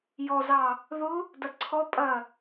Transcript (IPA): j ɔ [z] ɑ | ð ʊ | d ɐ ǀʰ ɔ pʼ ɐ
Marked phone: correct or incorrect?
correct